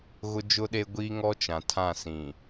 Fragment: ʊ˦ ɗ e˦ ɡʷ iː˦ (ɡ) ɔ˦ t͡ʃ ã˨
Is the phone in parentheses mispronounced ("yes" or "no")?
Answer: yes